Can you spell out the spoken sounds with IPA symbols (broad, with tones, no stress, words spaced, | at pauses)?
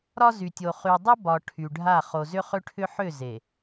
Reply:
ɾɒ˦zy˨tʲo˨ χy˨dˤʏ˦ bɒ˨ ʈʰy˨ɖʱa˦˨ χo˨zʏ˦χʏ˦ʈʰʏ˦ ħʏ˦˨ze˨